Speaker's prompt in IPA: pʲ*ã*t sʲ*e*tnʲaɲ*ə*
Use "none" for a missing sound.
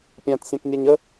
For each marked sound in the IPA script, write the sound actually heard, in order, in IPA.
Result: ã, ẽ, ə

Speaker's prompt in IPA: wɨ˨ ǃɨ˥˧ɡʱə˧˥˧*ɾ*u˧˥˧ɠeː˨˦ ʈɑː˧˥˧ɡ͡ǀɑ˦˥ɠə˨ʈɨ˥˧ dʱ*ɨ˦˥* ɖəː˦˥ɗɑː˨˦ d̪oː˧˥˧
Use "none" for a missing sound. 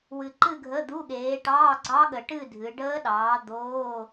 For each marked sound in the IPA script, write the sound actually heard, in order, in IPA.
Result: d̪, ɨ˨˦

